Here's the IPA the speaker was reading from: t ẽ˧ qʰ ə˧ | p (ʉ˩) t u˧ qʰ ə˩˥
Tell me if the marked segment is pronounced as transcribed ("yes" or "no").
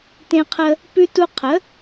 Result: no